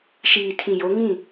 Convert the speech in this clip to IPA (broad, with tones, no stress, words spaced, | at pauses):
ʃiː˨tʰĩ˨jo˨˦ ŋĩ˦˨